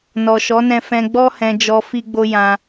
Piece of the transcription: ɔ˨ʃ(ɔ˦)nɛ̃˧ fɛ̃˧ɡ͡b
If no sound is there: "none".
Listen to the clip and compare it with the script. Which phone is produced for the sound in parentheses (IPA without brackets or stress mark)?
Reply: ɔ˨˦